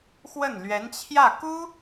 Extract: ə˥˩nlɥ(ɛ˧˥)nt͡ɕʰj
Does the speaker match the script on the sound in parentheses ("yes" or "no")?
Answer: yes